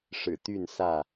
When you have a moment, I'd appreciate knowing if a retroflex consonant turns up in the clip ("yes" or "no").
yes